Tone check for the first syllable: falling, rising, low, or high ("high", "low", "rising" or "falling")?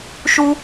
high